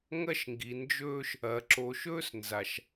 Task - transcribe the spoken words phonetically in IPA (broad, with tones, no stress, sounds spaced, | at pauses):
ŋ ɐ˦ ʃ ŋ ɡ i˨ n d͡ʒ ɵː˦ ʃ | ɐ˨ ǁ o˨ ʃ ɵː˦ s n z a˨ ʃ